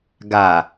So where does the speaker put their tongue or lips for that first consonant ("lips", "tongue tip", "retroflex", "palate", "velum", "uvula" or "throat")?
velum